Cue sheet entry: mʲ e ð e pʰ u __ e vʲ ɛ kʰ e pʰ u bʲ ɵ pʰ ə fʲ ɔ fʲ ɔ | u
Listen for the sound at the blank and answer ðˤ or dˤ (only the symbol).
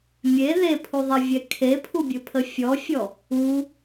ðˤ